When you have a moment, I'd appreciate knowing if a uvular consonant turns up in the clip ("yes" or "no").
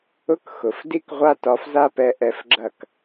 yes